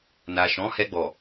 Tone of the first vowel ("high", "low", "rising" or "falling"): low